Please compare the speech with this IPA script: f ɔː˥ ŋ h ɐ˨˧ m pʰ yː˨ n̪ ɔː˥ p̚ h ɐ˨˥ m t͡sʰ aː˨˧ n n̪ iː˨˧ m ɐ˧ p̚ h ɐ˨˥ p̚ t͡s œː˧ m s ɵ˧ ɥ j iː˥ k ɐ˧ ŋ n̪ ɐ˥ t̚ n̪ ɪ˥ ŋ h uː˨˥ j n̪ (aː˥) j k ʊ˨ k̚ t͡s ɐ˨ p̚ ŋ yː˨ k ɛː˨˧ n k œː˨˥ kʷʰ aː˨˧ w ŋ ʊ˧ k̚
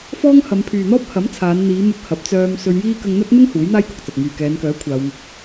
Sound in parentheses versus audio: correct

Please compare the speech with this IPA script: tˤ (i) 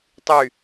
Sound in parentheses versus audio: incorrect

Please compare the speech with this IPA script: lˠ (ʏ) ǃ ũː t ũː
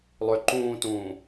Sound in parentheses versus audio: correct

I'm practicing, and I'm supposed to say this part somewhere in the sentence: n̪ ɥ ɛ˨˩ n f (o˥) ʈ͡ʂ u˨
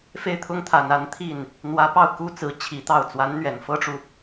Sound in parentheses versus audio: incorrect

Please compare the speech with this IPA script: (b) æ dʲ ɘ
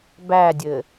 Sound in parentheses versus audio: correct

